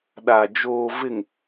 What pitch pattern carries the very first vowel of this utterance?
low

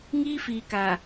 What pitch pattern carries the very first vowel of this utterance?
high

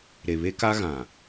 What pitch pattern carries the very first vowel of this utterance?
low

